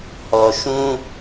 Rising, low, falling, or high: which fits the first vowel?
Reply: low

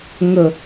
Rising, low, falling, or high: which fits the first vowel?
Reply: falling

